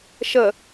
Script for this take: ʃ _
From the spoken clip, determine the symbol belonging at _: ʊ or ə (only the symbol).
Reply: ə